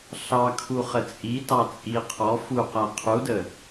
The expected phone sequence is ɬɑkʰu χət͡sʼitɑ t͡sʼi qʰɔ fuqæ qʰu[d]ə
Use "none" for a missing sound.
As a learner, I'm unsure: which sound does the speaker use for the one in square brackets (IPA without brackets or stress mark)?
d